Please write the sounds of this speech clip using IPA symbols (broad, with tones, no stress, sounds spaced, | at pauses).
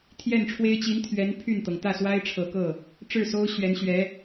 t̪ʰ j ɛ˥˩ n ʈ͡ʂʰ w e˥ ɪ̯ t͡ɕ i˧˥ n t̪ʰ ɥ ɛ˧˥ n pʰ y˥˩ n t̪ ɤ˩ ŋ t̪ ä˥˩ s w a˥ ɪ̯ ʈ͡ʂʰ ɤ˨˩ k ɤ˥˩ | ʈ͡ʂ ɻ̩˥˩ s o˥ ʊ̯ ɕ ɥ ɛ˧˥ n ɕ ɥ ɛ˧˥